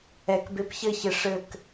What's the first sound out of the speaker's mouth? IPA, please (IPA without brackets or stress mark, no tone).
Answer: ɛ